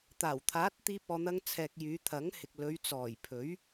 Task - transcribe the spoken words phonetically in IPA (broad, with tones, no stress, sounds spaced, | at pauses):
t̪ aː˨˩ w t̪ʰ aː˨˥ t̚ t̪ iː˧ p̚ ɔː˨ n̪ ɐ˧ ŋ t͡sʰ ɛː˨ k̚ j yː˨˧ t̪ʰ ɐ˨˥ ŋ h ɪ˨ k̚ l ɵ˨˧ ɥ t͡s ɔː˨˩ j pʰ ɵ˨˥ ɥ